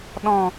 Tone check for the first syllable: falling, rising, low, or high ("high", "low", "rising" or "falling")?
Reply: falling